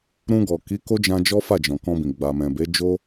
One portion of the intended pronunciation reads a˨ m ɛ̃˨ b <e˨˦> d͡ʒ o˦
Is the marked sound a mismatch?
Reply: no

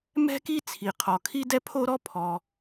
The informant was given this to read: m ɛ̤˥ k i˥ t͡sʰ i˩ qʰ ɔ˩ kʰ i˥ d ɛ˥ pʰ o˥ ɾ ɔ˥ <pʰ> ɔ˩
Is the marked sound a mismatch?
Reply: no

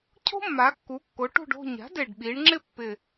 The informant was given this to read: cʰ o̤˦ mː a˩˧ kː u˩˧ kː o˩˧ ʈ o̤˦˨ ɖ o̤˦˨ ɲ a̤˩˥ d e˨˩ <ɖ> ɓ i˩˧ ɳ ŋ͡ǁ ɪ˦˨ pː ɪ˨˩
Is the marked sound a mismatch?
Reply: no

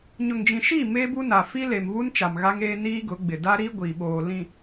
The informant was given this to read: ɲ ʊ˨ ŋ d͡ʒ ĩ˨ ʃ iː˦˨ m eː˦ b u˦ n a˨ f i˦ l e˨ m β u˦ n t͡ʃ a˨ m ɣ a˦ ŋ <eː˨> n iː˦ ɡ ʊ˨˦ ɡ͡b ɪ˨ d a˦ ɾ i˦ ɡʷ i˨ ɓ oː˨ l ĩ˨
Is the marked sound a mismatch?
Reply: yes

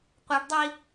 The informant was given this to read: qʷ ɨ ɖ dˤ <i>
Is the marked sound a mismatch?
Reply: no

